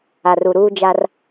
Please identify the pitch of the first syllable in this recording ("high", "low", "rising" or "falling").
low